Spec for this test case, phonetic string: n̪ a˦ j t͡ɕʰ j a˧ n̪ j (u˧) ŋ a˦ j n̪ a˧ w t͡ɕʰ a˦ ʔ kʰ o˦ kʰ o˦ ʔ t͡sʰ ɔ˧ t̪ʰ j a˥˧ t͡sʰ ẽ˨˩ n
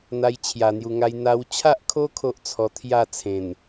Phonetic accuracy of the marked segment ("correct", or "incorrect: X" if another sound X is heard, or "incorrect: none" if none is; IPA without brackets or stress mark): correct